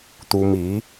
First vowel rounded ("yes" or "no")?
yes